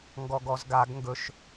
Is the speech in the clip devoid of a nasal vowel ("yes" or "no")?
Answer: yes